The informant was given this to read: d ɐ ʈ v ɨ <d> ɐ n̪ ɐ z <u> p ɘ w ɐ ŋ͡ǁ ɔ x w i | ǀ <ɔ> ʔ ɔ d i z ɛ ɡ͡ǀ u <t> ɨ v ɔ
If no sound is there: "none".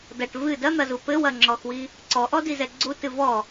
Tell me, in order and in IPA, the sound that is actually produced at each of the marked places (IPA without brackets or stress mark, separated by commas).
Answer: d, u, ɔ, t